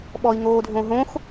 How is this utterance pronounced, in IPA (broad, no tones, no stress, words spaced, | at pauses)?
ɓɔi̯ŋoːdʱõɦõx